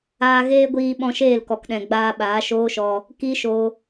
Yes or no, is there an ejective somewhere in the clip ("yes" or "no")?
no